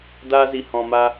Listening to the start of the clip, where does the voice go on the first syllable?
high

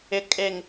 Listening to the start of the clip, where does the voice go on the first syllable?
low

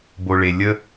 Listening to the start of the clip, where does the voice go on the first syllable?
low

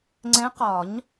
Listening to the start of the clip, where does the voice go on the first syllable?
rising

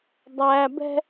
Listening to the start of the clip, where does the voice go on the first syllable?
low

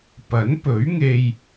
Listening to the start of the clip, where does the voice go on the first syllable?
rising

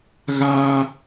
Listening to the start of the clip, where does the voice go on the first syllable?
high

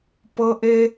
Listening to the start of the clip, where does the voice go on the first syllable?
high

